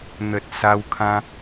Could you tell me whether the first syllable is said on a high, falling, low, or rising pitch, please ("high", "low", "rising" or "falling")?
low